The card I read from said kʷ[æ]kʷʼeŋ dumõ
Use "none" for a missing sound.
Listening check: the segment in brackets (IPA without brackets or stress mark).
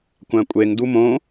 æ̃